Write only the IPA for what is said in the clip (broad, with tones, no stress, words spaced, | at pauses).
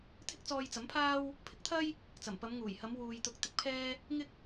t̪ʰɪ˥k̚t͡sɔː˧jt͡sɐ˨˥mpʰaː˥w | pʰɪ˨˥k̚t̪ʰɐ˥j | t͡sɐ˨˩mpɐ˨˧m ŋuː˨˩jhɐ˨˧m wuː˨jt̪ʊ˨˥k̚ t̪ɪ˧k̚pʰɛː˥ | ŋɪ˥k̚